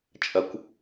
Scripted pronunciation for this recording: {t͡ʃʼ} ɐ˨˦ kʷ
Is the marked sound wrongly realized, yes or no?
no